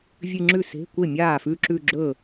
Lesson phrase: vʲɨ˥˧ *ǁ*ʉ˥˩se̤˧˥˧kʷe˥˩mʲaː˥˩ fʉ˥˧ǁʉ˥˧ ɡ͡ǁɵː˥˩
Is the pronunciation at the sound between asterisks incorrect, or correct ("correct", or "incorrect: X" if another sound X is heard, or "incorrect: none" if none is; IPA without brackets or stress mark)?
incorrect: ŋ͡ǁ